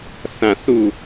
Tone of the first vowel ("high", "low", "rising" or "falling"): falling